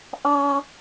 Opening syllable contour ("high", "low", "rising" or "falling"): high